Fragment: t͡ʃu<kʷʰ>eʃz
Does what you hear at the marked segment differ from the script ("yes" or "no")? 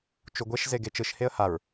yes